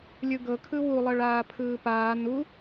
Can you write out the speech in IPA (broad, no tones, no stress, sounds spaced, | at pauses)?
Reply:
lʲ ɯ ɡ ɤ kʰ ɯ w u lˠ ɤ ɭ aː pʰ ɯː p aː n u